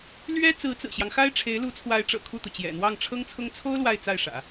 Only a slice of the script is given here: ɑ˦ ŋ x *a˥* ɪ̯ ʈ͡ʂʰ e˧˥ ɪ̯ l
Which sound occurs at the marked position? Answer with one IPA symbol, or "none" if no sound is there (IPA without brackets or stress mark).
a˥